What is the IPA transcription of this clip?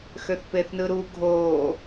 xøθpeθnɯɾu ɡʱoː

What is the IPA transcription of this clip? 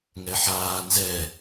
ŋɛħaː nzɛ

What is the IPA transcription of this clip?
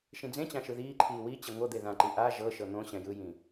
ʃĩd͡zẽt͡ɕã ʃɯðiːǃʰiː wi t͡ɕeŋʷɤd̪e ðãǃi ʔa ʒɤʃɤ n̪õ ɕɛ̃jɯjĩ

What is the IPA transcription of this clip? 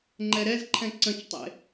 ŋ͡ǃɛɾɛzǃʰɛ̃ ǀə̃t͡ʃtˤḛ

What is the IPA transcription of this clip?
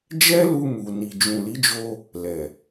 d͡ʒɛ˦lu˧mu˨ ni˨d͡ʒũ˨li˨˦d͡ʒo˧ | lɛ˨

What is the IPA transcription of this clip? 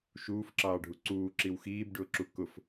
ʃuːfǁɑːɖʱu ǀuːǁiw xiːbɖʊːǁu kʊf

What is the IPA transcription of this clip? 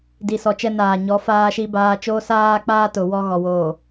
di˨sɔ˨t͡ʃɛ˦ naː˨ɲɔ˨˦ faː˦ʃi˦baː˦ t͡ʃoː˦ saː˦ k͡paː˦tʊ˨ wɔ˦ɣɔ˨woː˨

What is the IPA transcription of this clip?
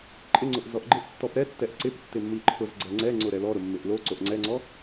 ǃʼɪŋ͡ǀʊʔ zɔʔɡ͡ǃɪʔ tːɔpɾɛtːɛʔ ǀɪp tːɪmːiǃʰʊz ɡ͡ǀɛŋ͡ǀɛŋ͡ǀʊ ɾɛlɔɾʊ mːɪʔlo ǀoʔŋ͡ǀɛŋ͡ǀɔ

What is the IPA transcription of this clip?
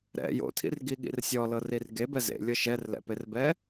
ɾɛ̰ jo̰tʰḭrɡiɠḭr sʲɔlɤrir ɡebɛ zḛlʲɤ ʃɛrlɛ̰perbɛ

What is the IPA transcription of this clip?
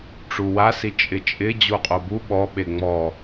ʈ͡ʂuwasi t͡ʃʼɪt͡ʃʼɪ d͡ʑoqʼobu ɓɔɓe ŋ͡mɔ

